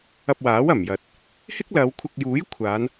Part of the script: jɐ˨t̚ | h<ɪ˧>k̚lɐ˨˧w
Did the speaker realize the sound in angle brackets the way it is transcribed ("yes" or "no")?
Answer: no